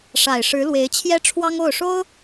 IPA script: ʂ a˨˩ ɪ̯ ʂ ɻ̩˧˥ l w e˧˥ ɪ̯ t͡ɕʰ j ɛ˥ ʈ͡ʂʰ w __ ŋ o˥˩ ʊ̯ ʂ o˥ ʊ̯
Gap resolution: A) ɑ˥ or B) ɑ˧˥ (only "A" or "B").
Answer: A